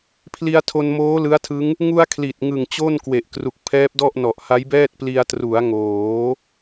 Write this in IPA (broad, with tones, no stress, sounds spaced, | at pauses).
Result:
pʰ l i˧ a̯ tʰ o˧ n m oː˦˥ l ɯ˦˥ a̯ tʰ ɯ˦˥ ŋ | ŋ u˧ a̯ kʰ l i˨˩ t̚ ŋ ɯ˨˩ ŋ t͡ɕ o˥˩ n k w e˨˩ ʔ k r u˨˩ k̚ pʰ ɛː˦˥ p̚ d ɔ˥˩ ʔ n ɔ˨˩ ʔ h a˦˥ j b ɛː˥˩ t̚ p l i˧ a̯ t r u˩˦ a̯ ŋ oː˩˦